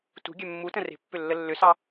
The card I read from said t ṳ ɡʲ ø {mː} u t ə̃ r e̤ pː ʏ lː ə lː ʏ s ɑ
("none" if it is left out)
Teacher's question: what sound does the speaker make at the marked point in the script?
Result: mː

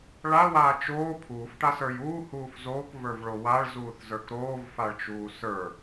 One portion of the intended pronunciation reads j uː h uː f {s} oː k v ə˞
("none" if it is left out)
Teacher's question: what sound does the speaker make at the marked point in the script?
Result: z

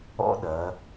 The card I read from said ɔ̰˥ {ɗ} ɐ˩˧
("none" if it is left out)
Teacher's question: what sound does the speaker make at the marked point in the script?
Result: ɗ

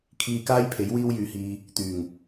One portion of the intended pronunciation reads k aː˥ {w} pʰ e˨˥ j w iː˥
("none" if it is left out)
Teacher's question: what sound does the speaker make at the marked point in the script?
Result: j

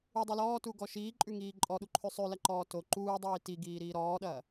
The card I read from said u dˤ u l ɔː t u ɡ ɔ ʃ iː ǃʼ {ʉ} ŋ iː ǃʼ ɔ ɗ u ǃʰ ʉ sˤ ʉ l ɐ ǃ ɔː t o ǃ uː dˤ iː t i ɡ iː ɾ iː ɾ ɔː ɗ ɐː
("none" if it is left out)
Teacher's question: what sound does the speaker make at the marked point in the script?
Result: ʉ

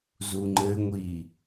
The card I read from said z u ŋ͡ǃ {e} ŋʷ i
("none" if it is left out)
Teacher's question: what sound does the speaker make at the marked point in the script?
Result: ɘ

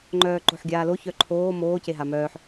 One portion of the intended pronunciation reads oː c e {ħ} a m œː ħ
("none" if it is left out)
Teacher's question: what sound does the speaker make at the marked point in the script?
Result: ɦ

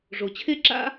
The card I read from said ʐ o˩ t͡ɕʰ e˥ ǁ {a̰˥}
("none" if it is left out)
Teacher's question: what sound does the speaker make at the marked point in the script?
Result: a̰˥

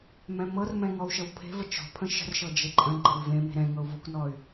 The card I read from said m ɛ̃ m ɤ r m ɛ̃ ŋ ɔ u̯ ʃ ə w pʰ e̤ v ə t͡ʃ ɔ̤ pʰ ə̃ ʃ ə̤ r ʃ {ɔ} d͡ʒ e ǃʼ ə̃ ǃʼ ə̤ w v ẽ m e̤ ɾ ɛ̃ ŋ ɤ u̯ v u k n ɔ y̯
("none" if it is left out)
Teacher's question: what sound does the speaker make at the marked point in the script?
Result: ɤ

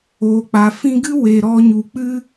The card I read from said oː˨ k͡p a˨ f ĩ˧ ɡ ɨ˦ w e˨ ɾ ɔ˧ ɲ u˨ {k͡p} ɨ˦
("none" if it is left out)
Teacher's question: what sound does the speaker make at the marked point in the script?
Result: k͡p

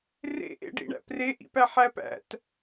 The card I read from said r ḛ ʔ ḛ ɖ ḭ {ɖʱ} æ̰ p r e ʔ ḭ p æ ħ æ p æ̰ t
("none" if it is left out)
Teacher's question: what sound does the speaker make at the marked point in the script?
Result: ɳ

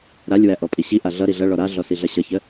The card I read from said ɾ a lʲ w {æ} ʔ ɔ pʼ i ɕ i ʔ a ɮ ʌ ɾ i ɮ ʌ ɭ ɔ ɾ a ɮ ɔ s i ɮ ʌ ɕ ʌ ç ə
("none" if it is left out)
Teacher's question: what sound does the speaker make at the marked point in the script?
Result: æ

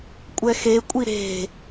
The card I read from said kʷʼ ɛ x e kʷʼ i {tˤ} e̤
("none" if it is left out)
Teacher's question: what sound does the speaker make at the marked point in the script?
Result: ɾ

